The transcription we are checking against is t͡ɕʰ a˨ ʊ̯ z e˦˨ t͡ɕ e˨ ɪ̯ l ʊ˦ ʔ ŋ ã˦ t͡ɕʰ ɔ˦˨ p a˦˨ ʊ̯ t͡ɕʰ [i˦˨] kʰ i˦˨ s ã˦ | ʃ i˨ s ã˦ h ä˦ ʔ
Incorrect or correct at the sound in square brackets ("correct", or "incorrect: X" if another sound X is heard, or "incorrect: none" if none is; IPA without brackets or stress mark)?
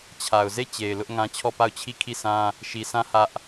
correct